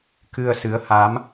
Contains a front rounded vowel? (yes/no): no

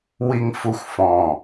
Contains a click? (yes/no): no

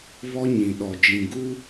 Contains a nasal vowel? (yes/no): yes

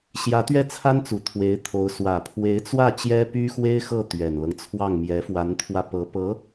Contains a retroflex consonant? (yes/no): no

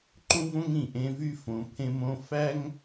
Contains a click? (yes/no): yes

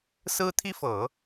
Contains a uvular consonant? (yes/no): no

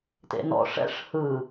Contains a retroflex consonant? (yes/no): yes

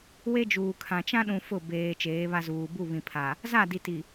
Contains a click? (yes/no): no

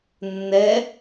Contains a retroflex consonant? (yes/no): no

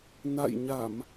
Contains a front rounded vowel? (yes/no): no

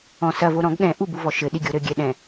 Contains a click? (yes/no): no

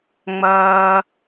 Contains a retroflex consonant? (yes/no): no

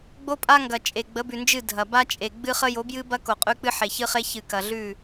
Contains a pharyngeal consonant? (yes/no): yes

